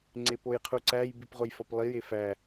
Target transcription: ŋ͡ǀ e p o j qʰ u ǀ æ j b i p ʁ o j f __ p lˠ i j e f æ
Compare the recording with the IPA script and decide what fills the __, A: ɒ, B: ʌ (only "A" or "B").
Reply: A